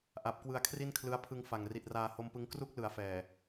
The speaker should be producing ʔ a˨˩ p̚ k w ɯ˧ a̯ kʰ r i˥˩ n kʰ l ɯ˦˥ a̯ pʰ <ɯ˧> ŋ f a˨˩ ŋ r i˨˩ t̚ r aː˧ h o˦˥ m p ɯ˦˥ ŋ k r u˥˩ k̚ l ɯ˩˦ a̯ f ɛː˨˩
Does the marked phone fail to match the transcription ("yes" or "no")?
no